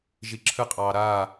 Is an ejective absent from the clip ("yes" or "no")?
no